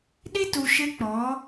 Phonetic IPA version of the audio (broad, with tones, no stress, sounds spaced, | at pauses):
ɗ i˦ t u˨ ʃ ɪ˦ k͡p ɔ˨˦